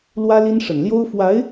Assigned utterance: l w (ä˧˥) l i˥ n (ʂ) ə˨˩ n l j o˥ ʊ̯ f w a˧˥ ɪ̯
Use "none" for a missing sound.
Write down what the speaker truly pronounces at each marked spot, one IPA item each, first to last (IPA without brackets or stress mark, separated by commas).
ä˥, ʂ